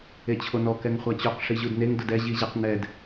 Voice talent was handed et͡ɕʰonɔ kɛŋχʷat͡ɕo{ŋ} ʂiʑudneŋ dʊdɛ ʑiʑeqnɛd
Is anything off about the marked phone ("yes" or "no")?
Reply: yes